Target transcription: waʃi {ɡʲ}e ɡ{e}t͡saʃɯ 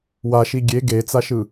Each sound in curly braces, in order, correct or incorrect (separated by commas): correct, correct